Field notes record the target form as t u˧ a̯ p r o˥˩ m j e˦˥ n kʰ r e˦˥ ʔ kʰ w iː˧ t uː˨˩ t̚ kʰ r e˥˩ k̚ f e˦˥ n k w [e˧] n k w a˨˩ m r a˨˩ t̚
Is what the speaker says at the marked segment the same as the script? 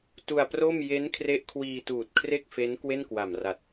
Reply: no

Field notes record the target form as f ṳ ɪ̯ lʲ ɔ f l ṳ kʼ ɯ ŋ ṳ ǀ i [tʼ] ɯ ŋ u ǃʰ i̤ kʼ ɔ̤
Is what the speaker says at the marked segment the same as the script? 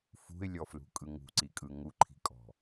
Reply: no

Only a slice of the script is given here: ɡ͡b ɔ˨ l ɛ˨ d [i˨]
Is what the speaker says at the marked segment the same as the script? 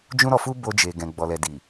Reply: yes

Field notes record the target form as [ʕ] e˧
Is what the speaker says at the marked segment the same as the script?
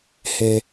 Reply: no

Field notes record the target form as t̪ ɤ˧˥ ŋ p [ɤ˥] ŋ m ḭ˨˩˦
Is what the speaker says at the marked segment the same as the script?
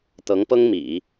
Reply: yes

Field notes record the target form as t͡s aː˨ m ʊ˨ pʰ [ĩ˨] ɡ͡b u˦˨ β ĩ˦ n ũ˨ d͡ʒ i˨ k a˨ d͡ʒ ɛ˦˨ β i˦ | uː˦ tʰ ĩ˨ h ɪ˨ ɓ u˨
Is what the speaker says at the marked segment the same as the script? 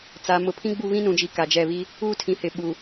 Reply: no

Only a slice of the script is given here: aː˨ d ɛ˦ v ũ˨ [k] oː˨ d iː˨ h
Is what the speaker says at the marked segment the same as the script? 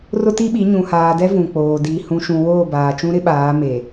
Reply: no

